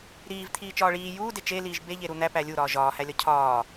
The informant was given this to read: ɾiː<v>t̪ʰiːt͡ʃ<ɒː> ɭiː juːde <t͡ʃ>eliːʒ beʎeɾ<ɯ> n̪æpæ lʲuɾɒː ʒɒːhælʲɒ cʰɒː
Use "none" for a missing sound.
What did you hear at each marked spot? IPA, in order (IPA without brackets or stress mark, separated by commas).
v, ɒː, t͡ʃ, u